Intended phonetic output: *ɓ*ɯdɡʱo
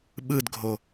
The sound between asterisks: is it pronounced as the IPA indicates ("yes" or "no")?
yes